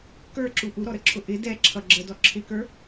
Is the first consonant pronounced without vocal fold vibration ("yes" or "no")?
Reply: yes